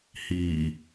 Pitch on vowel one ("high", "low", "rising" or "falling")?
low